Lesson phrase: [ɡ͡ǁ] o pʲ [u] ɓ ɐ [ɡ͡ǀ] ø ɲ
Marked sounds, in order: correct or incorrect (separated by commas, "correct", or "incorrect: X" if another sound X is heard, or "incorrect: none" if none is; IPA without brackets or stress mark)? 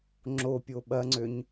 incorrect: ŋ͡ǁ, incorrect: o, incorrect: ŋ͡ǀ